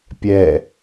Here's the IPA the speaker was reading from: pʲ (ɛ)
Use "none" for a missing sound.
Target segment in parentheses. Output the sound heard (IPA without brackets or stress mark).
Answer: ɛ